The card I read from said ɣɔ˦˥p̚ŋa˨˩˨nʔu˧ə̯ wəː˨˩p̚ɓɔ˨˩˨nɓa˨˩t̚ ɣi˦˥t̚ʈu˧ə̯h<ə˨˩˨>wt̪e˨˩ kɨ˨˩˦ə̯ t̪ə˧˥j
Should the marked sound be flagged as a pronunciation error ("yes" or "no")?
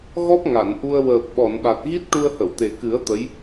no